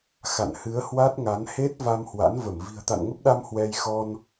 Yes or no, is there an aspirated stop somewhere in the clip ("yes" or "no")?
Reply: no